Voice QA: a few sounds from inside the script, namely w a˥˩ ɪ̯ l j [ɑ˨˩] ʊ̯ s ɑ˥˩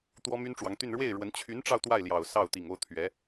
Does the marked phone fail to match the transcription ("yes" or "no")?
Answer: no